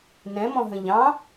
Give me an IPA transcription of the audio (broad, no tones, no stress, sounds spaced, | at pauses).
n ɛ̃ m ɔ̃ ɦ ə̃ ʎ ɑ̃